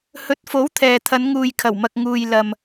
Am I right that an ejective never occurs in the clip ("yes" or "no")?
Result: yes